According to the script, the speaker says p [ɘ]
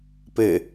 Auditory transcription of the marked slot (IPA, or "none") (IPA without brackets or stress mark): ɘ